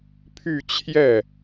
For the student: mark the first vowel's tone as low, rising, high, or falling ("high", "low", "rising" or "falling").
falling